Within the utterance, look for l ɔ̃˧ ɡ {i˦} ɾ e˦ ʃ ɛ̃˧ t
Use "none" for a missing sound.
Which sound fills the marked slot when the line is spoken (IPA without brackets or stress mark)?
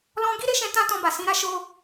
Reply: i˦